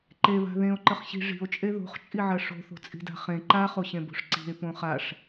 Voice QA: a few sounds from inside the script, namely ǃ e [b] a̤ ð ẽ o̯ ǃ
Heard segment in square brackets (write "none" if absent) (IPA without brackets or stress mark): β